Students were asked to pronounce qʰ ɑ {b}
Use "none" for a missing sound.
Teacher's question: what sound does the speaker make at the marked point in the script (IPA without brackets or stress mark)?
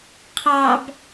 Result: b